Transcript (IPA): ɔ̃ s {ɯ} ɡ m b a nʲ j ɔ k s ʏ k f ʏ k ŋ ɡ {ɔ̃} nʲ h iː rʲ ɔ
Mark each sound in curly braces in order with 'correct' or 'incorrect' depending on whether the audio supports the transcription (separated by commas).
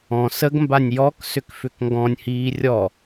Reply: incorrect, correct